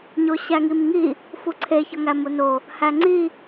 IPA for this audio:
ɲoɕæŋimŋi | fuǀʰe çɒŋæmuno | hæŋ͡ǀi

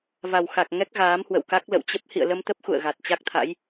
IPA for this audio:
va˨˩wxa˨˩k̚ ŋɛ˦˥k̚ ɣaː˨˦mhwə̰˧˨wka˦˥k̚ lə̰˧˨wt͡ɕə˦˥p̚ hḭ˧˨ə̯lə˧mt̪ə˦˥p̚ xṵ˧˨ə̯ɣa˨˩t̚t͡ɕa˦˥k̚t̪ʰa̰˧˥j

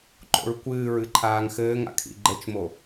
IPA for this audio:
ǃo̰ɹkʷɨːɹɨ ǃʰaːŋxɘːŋa̰ kʰḭɡ͡ǃɘt͡ʃmo

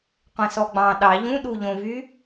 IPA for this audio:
qʷɛ̃sɔɡ͡bɑ̃ ɗɑ ʎũɗu ʎõvy

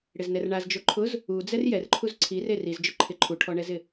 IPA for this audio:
ɽɪznɛrɳaz d͡ʒoǃʰʊz | ud͡zɛr jɛrǃʰuz ǀʰir eriz d͡ʒʊǃʰɪ ǃʰuʈʰɔɳɛzɪ

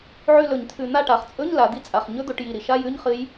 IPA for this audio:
ʕʉ˦˨lɵ˧˩˧ɲt̪ʰʉ˧˩˧ n̪a˦˨ʈa˩˧χt͡sʼɵ˧˥˧ɲ la˩˧d̪i˦˨ t͡sʼa˨˩χɲɵ˦˥d̪o˩˧ʈji˨˩ ɾi˩˧ʃa˧˥˧jʉ˧˥˧ɲ χɨ˦˥j

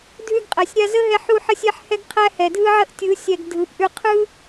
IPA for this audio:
dʱʉ˧ɡqʼæ˨sʲ ɾʲa˧zə˦ɦɛ˧ ħu˧ħə˧sʲɛ˧ħ hɛ˦ɡqʰæ˦ hɛ˨dʱɯ˦ʕə˦ʔ tʲɯ˨˦ sʲɛ˧ɡdʱɯ˨˦pʔʉ˦ qʰɯ˦

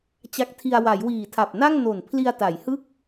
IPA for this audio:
t͡ɕa˦˥k̚tʰi˧a̯ wa˩˦jwiː˨˩tʰa˨˩p̚na˥˩ŋ no˨˩n pʰli˧a̯ta˩˦j hɯ˥˩k̚

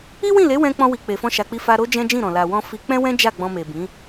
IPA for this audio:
i˦wĩ˦˨le˨˦wɛ̃˧ k͡pɔ̃˧wi˨ k͡pe˨fɔ̃˧ʃa˨k͡pi˧ fa˧ɾo˦ d͡ʒɛ̃˦d͡ʒĩ˦˨ɾɔ̃˨ la˨wɔ̃˧ fi˧k͡pɛ̃˦wɛ̃˦ d͡ʒa˦˨ɡ͡bɔ̃˧me˨bĩ˨˦

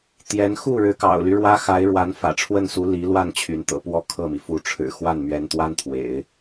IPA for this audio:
t̪jɛ˧˥n xu˥˩ ɻɻ̩˧˥kɑ̰˨˩ʊ̯ly˦ ɻwä˥xa˧˥ɪ̯ɻwa˧˥n fä̰˨˩ʈ͡ʂʰwə˥˩nsu˧˥ li˧˥lwa˥˩n t͡ɕʰy˧˥nt̪ɤ̰˨˩ pwɔ˥˧kʰɤ˥˩mi˩ fu˧˥ ʈ͡ʂʰɻ̩˨˩ xwa˥˩nmɥɛ˧˥n t̪wa˥nt̪ʰwḛ˨˩˦ɪ̯

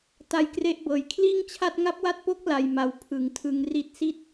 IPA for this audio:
ta˦˥jkre˦˥ʔbɤː˨˩j kʰliː˥˩ŋt͡ɕʰa˥˩t̚ ŋa˦˥p̚wa˦˥t̚po˦˥k̚ la˧j ma˨˩w pʰɯ˩˦ŋtʰɯ˧ŋ ri˥˩t̚ si˥˩t̚

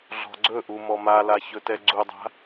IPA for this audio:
ɮɔ̤ɡ͡ǀɵʔu mɔmala çɵtɛɡ͡ǀudˤa̤

